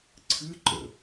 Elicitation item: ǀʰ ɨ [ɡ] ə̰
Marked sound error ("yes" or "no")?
yes